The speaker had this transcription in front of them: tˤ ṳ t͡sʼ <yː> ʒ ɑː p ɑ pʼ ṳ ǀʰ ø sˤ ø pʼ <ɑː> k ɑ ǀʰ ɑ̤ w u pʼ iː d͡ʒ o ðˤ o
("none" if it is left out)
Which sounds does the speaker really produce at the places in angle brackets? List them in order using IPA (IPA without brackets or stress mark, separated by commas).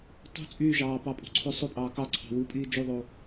yː, ɑː